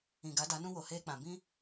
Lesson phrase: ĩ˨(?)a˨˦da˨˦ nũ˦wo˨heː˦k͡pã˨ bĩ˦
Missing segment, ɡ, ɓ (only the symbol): ɡ